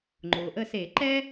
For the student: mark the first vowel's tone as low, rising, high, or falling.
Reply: low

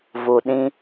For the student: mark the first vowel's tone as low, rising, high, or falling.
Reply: low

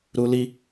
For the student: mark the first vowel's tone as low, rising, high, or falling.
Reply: high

